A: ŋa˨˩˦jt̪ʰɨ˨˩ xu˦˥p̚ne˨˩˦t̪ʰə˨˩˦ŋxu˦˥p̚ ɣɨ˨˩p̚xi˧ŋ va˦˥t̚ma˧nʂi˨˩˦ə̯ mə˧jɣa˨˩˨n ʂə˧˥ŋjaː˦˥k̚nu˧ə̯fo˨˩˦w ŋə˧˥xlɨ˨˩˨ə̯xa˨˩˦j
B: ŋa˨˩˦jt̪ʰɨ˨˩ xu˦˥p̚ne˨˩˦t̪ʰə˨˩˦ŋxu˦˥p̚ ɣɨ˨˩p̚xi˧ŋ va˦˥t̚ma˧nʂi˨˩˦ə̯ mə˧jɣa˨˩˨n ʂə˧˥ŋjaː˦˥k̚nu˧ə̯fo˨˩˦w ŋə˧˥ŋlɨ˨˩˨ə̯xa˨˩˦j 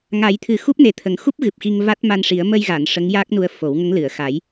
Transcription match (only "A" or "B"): B